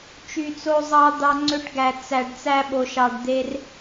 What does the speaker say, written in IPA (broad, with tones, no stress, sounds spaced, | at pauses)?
t͡ʃ y˧ t͡s o˦ zˤ ɑ˦ d̪ ɑ˧ ŋ͡ǀ ø˧ ʈ ɡ æ˨ t͡s æ˨ ɖ t͡s æ˧ ɓ o˨ ʃ ɑ˨ ɖ d̪ e˧ r